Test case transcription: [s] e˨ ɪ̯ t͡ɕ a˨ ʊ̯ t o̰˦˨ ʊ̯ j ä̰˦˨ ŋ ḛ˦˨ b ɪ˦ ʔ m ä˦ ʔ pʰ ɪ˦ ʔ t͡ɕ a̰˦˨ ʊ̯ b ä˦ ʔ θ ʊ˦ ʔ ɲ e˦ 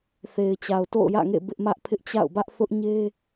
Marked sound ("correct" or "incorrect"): incorrect